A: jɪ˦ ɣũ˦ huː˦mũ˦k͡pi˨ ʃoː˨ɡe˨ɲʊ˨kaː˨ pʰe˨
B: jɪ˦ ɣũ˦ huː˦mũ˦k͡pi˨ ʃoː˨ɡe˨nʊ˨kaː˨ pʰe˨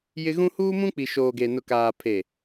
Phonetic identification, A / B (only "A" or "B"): B